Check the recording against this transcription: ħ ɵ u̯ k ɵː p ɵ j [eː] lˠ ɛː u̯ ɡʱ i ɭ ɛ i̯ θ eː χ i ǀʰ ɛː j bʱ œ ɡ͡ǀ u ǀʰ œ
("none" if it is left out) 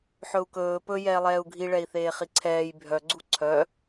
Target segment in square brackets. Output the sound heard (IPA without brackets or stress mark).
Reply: ɛː